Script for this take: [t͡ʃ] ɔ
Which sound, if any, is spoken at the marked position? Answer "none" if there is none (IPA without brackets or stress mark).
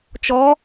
t͡ʃ